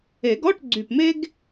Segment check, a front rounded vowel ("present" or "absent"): present